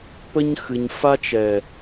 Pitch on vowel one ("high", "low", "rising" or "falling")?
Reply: high